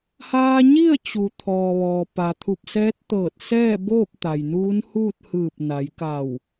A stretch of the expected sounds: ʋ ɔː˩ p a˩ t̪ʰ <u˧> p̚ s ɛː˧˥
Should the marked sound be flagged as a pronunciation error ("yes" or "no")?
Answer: yes